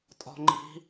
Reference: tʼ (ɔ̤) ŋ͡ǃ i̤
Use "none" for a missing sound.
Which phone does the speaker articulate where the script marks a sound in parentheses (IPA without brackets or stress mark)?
ɔ̤